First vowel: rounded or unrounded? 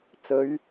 rounded